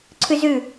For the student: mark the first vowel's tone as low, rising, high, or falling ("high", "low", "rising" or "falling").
high